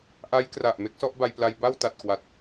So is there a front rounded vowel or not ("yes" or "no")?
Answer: no